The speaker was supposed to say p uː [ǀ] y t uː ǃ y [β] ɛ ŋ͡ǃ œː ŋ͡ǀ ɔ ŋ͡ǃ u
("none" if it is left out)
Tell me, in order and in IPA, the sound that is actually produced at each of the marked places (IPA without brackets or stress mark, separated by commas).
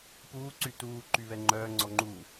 ǀ, β